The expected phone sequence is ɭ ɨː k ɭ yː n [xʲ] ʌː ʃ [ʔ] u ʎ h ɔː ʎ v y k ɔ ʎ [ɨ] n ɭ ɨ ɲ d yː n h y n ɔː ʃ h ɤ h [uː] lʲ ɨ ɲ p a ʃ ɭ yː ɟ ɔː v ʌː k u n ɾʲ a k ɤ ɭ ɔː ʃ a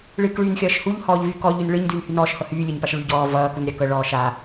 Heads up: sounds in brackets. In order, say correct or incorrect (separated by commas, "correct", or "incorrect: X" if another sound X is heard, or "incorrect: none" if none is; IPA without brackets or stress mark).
correct, incorrect: h, incorrect: y, incorrect: yː